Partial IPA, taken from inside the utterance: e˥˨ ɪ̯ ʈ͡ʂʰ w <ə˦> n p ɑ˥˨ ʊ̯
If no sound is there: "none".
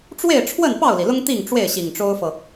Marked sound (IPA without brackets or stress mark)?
ə˥˨